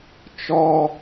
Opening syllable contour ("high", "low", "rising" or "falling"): high